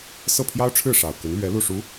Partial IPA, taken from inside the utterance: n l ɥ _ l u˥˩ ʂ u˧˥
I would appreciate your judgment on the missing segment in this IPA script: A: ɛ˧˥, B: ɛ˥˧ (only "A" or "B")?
A